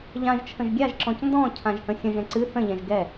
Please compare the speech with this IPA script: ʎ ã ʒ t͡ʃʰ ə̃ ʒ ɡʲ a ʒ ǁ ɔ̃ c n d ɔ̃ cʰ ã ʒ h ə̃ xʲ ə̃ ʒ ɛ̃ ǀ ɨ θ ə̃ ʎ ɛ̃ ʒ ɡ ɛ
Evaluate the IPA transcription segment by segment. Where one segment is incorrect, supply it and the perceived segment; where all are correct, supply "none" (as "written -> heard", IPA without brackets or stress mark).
none